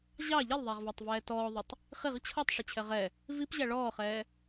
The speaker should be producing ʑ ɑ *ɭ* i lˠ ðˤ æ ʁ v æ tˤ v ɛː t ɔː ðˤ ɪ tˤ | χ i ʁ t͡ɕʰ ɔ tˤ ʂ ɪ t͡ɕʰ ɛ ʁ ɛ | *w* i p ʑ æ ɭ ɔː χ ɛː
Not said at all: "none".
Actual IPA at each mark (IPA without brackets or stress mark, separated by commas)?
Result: ʎ, v